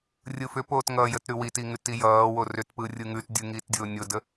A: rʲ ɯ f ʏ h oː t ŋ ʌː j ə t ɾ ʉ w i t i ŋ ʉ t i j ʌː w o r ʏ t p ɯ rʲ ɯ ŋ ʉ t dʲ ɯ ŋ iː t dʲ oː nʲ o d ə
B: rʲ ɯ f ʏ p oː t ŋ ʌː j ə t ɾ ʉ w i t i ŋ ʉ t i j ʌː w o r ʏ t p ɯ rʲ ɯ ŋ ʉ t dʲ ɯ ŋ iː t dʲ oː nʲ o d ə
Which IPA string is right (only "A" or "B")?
B